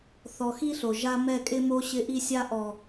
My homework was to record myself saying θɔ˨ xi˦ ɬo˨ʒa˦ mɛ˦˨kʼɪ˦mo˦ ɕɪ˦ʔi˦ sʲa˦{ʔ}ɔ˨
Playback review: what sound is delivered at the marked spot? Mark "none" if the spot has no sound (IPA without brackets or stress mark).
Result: ʔ